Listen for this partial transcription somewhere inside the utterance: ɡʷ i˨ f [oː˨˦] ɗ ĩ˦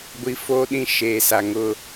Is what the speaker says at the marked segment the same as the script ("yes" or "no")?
no